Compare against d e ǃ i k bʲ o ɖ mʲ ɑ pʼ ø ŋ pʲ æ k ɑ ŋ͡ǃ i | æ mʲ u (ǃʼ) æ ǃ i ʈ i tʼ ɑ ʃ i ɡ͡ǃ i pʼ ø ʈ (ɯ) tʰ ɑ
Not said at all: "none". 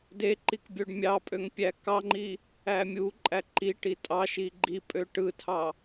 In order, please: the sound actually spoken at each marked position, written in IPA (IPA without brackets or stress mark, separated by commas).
ǃʼ, ɯ